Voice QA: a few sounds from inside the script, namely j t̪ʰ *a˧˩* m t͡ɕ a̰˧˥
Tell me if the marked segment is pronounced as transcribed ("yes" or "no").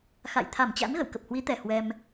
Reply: yes